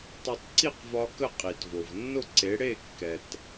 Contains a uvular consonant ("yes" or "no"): yes